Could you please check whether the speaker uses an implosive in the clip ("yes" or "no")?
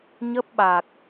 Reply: yes